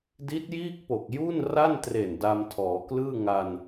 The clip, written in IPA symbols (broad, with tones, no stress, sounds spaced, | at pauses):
d i˦˥ t̚ j iː˥˩ k̚ p o˨˩ k̚ j uː˥˩ n r a˥˩ n t r e˨˩ n d a˧ m tʰ ɔː˩˦ k l ɯː˥˩ ŋ a˧ n